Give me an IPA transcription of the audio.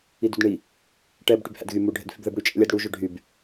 i d u d ɳ i | ʈ ɛ b ʈ y b h æ̰ d ɣ y m u ɖʱ ɛ̰ d f y b ð ɛ b ɽ y t͡ʃʼ ɛ̰ lʲ æ d ɽ u ʒ ɵ ɖʱ y b

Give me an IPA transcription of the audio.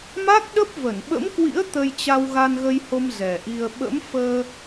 m a˦˥ k̚ ɗ ə˦˥ p̚ v ə˧˩ n ɓ ə̰˧˥ m k w ḭ˧˥ ə̯ t̪ ə˧ j t͡ɕ a˧ w ɣ a˧ n ɣ ə˧ j h o˧ m z ɛ˨˩ ʔ i˧ ə̯ ɓ ə̰˧˥ m f əː˧

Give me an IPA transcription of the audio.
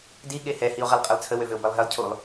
d i ɠ e h ɛ h i o̯ ʁ ɛ lˠ qʼ e lˠ t͡sʰ ə w ø v ø o̯ b ɛ lˠ ɦ e lˠ cʰ u lˠ

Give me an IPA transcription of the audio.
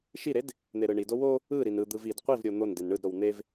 ʃ i ɾ e d | n̪ e ɾ ɯ ɳ i d o w o | ɯ ɾ i n ɯ d̪ ɯ v i d qʷ i v ɾʲ o n̪ o n d e n ɳ ɯ d ɾ o w n̪ e v

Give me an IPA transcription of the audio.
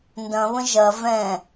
n d ɐ̃ β ə̃ ʒ ɐ v ɛ̃

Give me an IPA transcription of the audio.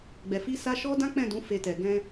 ɡ͡b ɛ˨ f i˧ s a˦ ʃ ɔ˧ d ã˦ k͡p ɛ̃˦˨ d ũ˨˦ f e˧ t ɛ˨ ɡ ɛ̃˧

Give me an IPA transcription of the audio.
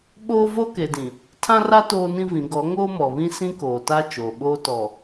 ɓ oː˦ v o˦ k e˨ d ĩ˨ | tʰ ã˦ r a˦ t oː˦ n ĩ˦ v ĩ˨˦ ɡ ɔ˨˦ ŋ oː˦ m ɔ˨ β ĩ˦ s ĩ˦ k oː˨ t a˦ t͡ʃ oː˨ ɓ oː˦ t ɔ˨

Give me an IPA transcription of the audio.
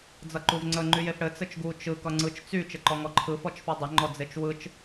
d͡z ʌ ǃ u v ŋ͡ǀ ə ŋ͡ǃ y j e f ɽ ɘ t͡s ɘ t͡ʃ ɡ u t͡ʃ ɯ k ʌ ŋ͡ǀ ɯ t͡ʃ t͡s y t͡ʃ ɘ ǃ ɔ ŋ ɔ ǃʰ ɯ f ɔ t͡ʃ f ʌ dˤ ə ŋ͡ǃ ɔ d͡z e t͡ʃ w ɯ t͡ʃ

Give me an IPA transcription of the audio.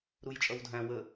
ɾ u j t͡ʃʼ ʌ w dʱ æ̃ w ə

